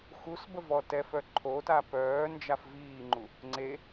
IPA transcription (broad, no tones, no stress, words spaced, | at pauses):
xusbə vɔtɛfœ ǃʰota pœːnd͡ʒaf viːŋ͡ǃu | ŋ͡ǀe